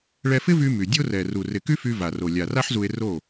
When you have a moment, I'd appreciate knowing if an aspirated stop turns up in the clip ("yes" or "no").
no